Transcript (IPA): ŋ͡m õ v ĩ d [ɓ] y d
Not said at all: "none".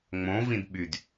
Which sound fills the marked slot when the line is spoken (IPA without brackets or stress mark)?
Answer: ɓ